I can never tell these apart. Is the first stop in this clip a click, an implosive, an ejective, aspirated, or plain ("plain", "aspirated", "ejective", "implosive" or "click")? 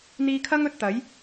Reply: aspirated